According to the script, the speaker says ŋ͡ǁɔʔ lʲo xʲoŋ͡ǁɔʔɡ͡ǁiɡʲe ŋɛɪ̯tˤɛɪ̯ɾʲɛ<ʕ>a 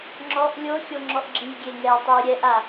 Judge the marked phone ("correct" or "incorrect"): incorrect